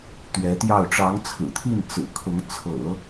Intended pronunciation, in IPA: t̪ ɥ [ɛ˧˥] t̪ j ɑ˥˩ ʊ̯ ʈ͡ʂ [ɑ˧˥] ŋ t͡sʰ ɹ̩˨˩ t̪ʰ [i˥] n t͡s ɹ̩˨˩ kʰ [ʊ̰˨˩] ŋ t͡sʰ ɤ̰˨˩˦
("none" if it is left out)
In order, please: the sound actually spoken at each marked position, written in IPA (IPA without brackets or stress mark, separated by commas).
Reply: ɛ˧˥, ɑ˧˥, i˥˩, ʊ˧˥